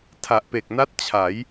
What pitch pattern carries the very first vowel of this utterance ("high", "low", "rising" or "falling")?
low